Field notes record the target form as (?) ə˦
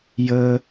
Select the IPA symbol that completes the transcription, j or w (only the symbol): j